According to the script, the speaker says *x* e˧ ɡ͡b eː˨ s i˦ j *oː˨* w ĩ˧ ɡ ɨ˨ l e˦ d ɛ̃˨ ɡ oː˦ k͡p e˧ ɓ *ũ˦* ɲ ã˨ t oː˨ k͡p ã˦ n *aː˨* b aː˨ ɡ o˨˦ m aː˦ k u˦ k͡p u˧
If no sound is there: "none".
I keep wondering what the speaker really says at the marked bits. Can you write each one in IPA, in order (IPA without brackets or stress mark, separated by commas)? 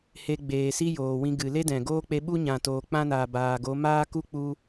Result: h, oː˨, u˦, aː˨